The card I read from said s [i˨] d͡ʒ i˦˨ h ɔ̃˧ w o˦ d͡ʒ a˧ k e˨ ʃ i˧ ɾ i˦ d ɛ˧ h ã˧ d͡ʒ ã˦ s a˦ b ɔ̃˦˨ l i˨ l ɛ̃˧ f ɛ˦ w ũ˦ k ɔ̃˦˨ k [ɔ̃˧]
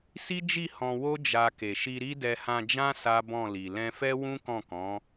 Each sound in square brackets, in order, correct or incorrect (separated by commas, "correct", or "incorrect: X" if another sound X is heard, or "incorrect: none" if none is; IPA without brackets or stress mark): incorrect: i˦, incorrect: ɔ̃˨˦